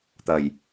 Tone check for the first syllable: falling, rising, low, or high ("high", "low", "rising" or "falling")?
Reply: low